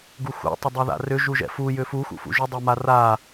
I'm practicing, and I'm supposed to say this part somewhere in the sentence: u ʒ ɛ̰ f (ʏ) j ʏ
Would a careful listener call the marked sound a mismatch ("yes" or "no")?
yes